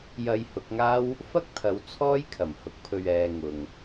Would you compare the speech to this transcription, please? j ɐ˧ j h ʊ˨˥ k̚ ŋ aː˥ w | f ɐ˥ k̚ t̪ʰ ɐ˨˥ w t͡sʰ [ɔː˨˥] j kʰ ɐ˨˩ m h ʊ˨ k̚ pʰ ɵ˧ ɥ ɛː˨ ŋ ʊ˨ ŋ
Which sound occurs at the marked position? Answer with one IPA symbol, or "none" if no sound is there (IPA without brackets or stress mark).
ɔː˥